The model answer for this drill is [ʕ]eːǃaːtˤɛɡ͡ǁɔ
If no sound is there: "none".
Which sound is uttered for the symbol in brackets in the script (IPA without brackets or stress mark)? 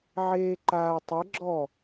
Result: ʕ